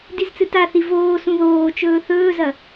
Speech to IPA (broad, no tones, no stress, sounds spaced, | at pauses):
d i z t͡s ɨ t a θ i v oː s ũ ð oː t͡ʃ ɵː θ ɵː z ɐ